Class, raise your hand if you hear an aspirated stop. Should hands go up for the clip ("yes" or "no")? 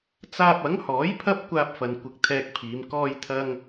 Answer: yes